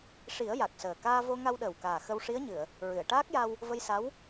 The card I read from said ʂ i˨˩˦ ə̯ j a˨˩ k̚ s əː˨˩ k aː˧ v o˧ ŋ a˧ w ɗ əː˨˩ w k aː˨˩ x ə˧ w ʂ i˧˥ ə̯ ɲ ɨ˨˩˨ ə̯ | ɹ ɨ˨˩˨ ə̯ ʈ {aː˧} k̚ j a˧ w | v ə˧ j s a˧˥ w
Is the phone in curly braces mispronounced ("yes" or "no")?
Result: yes